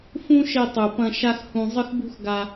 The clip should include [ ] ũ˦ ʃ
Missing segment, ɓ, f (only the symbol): f